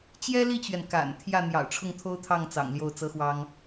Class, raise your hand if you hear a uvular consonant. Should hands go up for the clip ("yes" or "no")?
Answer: no